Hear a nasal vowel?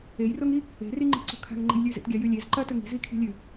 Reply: no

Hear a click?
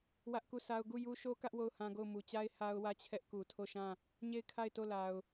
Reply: no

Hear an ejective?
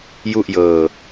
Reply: no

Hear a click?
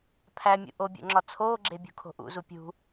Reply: yes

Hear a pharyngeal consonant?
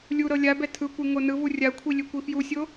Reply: no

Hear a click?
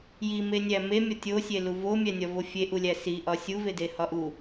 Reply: no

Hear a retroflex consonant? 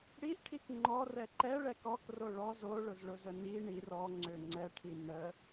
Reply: yes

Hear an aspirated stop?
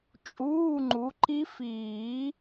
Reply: no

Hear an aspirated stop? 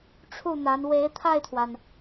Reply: yes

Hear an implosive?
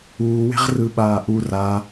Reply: yes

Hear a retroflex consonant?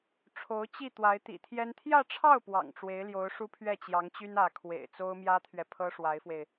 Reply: yes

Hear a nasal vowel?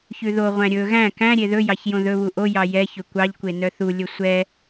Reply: yes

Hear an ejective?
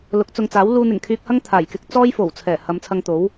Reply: no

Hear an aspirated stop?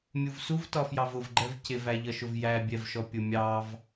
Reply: no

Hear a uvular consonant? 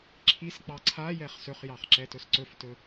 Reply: yes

